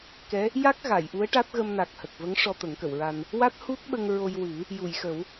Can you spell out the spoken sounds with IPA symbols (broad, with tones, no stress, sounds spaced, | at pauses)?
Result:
k ɛ˧˥ | j a˦˥ k̚ ɣ a˨˩˨ j ʔ u˧˥ ə̯ ʈ a˦˥ t̚ ɣ ə˧ m n a˨˩ k̚ h ə˨˩ k̚ v ə˧˥ ŋ ʂ ɔ˧ t̪ ə˨˩˦ ŋ k ə˨˩˨ w ɹ a˧ n | w a˦˥ t̚ h u˦˥ t̚ ɓ ə˧ ŋ ɹ o˧ j w ɨ˨˩˦ | j u˨˩˨ j x ə˨˩˦ w